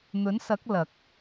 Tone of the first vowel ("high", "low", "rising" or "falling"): rising